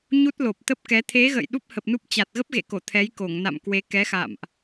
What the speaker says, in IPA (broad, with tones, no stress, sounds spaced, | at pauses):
ɲ u˦˥ t̚ l o˨˩ p̚ t̪ ə˦˥ p̚ k ɛ˨˦ t̪ʰ e˨˦ ɣ ə̰ː˧˨ j ɗ u˦˥ p̚ h ə˨˩ p̚ n u˦˥ p̚ t͡ɕ a˨˩ t̚ ɣ ə˦˥ p̚ ɣ ḛ˧˨ k o˧˩ t̪ʰ ɛ˨˦ j k o˧˩ ŋ n a̰˧˨ m k w e˨˦ k ɛ˨˦ x a̰˧˨ m ʔ